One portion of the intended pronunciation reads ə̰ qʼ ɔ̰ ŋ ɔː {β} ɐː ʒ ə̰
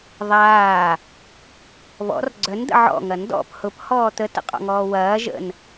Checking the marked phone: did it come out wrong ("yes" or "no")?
yes